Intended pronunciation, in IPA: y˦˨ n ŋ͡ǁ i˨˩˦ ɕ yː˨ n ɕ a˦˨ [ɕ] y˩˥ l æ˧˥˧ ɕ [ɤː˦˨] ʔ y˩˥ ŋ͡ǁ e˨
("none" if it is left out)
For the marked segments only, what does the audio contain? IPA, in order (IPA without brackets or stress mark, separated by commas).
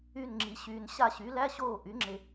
ɕ, oː˦˨